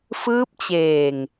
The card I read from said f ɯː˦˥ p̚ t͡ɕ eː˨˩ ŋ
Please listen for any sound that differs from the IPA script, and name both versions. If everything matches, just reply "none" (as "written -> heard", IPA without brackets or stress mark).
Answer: none